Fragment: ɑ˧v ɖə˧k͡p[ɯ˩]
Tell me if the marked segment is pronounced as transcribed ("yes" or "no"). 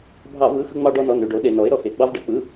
no